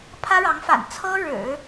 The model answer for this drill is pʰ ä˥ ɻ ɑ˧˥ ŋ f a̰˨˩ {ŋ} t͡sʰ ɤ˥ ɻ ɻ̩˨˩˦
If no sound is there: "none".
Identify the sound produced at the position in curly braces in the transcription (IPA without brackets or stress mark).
n